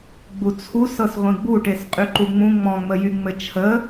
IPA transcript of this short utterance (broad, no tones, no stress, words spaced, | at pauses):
ɡ͡but͡sʰus ɤsʁʷĩɡ͡buʈes qʼyǃuŋ͡mũ ŋ͡mɔ̃ŋ͡məjy ŋ͡mɘt͡ʃʰə